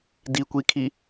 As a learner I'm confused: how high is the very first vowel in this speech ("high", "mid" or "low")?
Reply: high